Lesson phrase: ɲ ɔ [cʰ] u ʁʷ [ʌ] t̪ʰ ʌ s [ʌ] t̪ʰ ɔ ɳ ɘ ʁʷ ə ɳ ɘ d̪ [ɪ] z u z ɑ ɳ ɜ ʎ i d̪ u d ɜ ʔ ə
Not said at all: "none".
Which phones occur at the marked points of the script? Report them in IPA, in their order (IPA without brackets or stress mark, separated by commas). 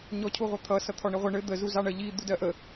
cʰ, ʌ, ʌ, ə